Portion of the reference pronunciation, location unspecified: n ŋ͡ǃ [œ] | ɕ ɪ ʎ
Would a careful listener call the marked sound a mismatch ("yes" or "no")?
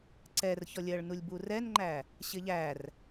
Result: yes